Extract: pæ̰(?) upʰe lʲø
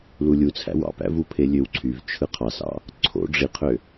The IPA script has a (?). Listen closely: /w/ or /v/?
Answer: v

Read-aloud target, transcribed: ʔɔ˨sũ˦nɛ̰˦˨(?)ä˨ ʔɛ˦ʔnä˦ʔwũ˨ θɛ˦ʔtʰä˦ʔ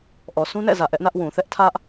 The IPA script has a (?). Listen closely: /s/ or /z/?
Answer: z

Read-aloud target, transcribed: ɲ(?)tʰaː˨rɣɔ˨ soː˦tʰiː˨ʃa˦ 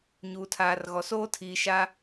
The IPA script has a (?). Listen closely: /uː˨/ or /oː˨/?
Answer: uː˨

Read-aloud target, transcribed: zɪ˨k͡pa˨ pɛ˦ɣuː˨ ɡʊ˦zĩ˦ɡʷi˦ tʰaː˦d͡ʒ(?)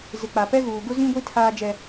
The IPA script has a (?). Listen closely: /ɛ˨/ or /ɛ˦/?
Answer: ɛ˦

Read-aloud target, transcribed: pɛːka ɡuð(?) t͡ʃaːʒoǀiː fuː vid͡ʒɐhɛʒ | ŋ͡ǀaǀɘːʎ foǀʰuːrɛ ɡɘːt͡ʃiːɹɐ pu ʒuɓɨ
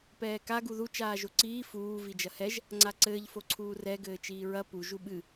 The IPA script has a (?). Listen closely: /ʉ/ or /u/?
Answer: u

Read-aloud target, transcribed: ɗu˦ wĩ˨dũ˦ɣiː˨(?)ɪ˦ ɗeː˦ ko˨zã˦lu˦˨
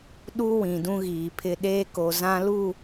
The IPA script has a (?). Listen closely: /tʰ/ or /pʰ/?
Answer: pʰ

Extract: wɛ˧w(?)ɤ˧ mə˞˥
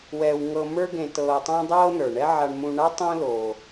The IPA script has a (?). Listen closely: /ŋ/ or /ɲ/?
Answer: ŋ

